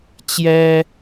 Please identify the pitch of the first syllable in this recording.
high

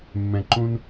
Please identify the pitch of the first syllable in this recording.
low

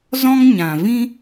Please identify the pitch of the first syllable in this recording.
high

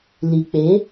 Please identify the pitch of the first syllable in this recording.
low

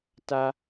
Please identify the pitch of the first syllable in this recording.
high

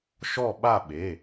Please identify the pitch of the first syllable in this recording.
falling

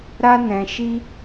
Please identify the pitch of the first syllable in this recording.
high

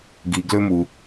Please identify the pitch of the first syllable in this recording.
low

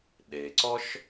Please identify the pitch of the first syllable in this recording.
low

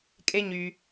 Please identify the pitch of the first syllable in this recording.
high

